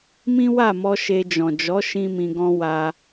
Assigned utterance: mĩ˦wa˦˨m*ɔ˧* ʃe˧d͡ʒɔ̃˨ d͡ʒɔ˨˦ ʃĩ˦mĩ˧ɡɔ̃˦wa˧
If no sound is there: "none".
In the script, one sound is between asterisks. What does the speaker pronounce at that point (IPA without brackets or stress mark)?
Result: ɔ˧